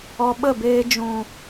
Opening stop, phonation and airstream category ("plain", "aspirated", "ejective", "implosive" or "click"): implosive